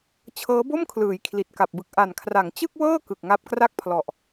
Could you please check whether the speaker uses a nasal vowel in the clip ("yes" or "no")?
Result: no